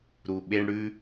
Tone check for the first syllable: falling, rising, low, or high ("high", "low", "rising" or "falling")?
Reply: low